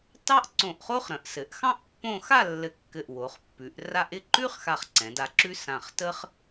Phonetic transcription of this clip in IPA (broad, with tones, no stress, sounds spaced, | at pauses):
t ɑ˥ ʔ ǀ õ˧˩ ʔ χ o˥ χ ɾ ə̃˩˧ ʔ s ɘ˩˧ ʔ x ɑ̃˥ ʔ pː õ˥˧ x a˥˧ lː ɘ˧˩ kː ɘ˧˩ ʔ w o˩˧ χ pː ʉ˩˧ ʔ r a˥ ʔ ɪ˥˧ ǃ ʉ˥ χ x a˧˩ χ ǀ ɛ̃˩˧ d a˧ ǁ ʉ˥ s ã˧˩ χ t ə˥ χ